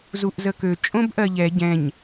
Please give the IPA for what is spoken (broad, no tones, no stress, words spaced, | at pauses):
zuʔzəkø t͡ʃʼõbʔɜʎɛ ɟɛ̃ɲ